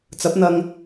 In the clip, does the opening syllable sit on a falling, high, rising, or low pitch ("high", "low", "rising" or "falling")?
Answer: rising